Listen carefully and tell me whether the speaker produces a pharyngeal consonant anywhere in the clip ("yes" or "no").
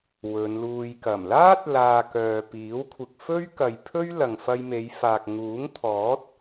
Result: no